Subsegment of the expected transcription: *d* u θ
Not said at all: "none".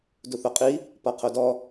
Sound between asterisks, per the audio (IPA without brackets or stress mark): d